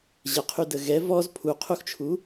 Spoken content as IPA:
ʑ ə qʰ y d ə ɣ ɛ v ɔ z pʰ u qʰ u x t͡ʃʰ u

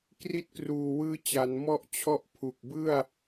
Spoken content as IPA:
k r i˦˥ t̚ k r uː˨˩ w ɯː˦˥ t͡ɕ a˩˦ n m ɔ˥˩ ʔ t͡ɕʰ ɔ˥˩ ʔ pʰ u˨˩ k̚ b ɯ˥˩ a̯

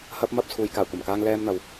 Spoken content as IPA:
h ɐ˥ p̚ m ɐ˥ p̚ t͡sʰ uː˧ j k aː˨˩ kʷ ɐ˨˩ m k aː˧ ŋ l ɛː˧ m n̪ ɐ˨ w

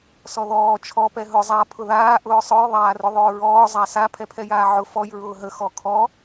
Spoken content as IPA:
s ɔ ð ɔː t͡ʃʰ ɔ p ɛ ɦ ʊ zˤ a pʰ ʊ ð aː ʔ ʊː sˤ ʊ j ðˤ aː r ʊ ðˤ ʊː ɹ ɔː zˤ a s a pʰ ɛ pʰ ɛ j aː ʕ ʊ f ɔ j ɹ ʊː ɦ ə x ɔ kʰ ɔ

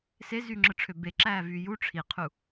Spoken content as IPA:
s e z yː ŋ͡ǁ ɯ ʈ͡ʂʰ ø b e ǁ æː v yː j u ʈ͡ʂʰ i qʰ u

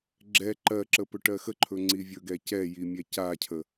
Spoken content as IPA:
ɡ͡ǁ ɛ ǃ ɜ ǁ ə p ɵ ʈ ɜ x ə ǃʰ ɵ ŋ͡ǀ i vʲ ɵ ɡ ɛ c ɛ j i mʲ ɛ c a cʰ ə

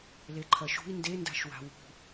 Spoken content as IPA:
l e ǃʰ ɐ ʃ ṳ i̯ n d e n d a̤ ʃ w a̤ w ṳ

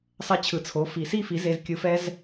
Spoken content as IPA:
sˤ ɛ˧ t͡ɕʰ ɯ˨ t͡sʰ o˨˦ f i˨ s i˦ f i˨˦ z e˧ z kʲ ɯ˧ f ɛ˦ z

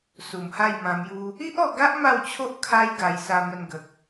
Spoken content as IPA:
s u˨˩ m h a˥˧ j m ã˧ m j u˦ | i˦ ʔ ɔ˧ ɡ a˦ ʔ m a˥˧ w t͡ɕʰ o˦ ʔ kʰ a˦ j ɡ a˧ j s a˧ m ə˧ n ɡ ə˨ k̚

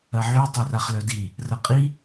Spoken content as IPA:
ɐ ʕ y tˤ œ r a χ l œ d i | r ɐ qʼ i

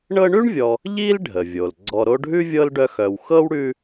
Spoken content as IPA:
ɳ ɤ˦ ɳ ʉ˥ ɳ vʲ ɔ˨ | ʎ i˥ l ɖʱ ə˩ vʲ o˩ l ɡ͡ǀ ɔ˨ ɾ o˦ ɖʱ ʉ˥ vʲ ɤ˥ l ɖ œ˦ x œ˨ w x ɤ˥ w ɽ ʉ˦

